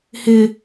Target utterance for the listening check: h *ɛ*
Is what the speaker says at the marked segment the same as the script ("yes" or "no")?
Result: no